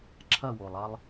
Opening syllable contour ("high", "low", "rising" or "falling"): falling